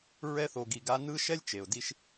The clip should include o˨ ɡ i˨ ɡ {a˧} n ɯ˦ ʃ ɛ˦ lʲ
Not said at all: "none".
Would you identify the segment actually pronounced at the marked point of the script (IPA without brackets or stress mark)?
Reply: a˧